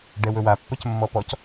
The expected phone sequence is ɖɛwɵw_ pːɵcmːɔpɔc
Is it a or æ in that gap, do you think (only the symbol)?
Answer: a